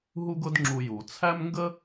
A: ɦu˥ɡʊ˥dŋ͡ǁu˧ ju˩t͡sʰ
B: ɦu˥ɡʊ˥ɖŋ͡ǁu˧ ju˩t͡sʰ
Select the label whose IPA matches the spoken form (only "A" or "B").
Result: A